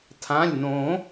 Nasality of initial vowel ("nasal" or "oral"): nasal